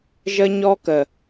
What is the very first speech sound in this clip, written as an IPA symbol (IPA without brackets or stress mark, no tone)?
ʒ